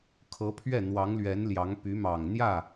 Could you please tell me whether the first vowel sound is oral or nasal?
oral